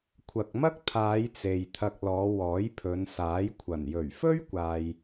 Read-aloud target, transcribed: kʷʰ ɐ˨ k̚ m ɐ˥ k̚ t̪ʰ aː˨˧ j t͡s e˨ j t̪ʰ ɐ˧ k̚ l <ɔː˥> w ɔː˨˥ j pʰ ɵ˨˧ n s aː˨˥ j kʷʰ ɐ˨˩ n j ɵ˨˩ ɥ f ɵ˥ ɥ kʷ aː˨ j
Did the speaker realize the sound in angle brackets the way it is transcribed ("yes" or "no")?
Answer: no